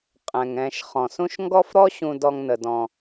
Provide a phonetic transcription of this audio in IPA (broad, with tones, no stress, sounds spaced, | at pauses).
qʼ ɛ̃˩ ŋ ɛ̃˨ ʃ χ ɔ̃˩ s ũ˦ ʃ ŋ ɡ ɔ˦ f ɾ ɔ˦ ɕ ũ˨ d ɔ˨ ŋ n ə˩ d ɔ̃˩